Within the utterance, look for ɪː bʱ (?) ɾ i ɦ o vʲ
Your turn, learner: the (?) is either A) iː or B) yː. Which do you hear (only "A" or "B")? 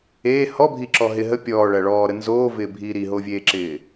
A